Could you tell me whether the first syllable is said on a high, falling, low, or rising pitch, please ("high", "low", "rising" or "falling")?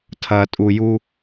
low